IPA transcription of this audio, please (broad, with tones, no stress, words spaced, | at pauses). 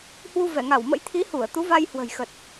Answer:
hwu˧vɛ˧˩ŋa˧˩wmə̰˧˥j t̪ʰi˨˦hu˧˩ə̯ t̪u˨˦va˧jhwə̤˨˩jxə˨˩t̚